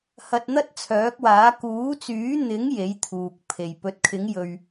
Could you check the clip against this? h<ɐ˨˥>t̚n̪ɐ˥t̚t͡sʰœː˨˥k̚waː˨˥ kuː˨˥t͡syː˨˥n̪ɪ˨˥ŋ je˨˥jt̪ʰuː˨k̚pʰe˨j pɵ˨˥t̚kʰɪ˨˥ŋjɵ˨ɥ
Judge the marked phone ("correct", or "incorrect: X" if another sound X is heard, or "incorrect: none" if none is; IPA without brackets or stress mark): incorrect: ɐ˧